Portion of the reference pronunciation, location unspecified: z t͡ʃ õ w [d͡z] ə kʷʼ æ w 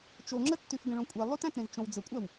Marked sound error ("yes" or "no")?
no